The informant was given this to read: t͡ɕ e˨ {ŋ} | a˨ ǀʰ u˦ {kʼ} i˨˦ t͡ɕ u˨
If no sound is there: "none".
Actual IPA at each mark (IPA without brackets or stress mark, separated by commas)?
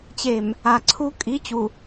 m, kʼ